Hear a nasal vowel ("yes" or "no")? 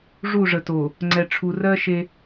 no